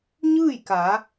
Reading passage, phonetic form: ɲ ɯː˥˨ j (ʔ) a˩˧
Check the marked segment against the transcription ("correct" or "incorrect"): incorrect